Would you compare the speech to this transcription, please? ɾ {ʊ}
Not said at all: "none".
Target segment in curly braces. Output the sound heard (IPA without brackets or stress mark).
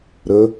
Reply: ə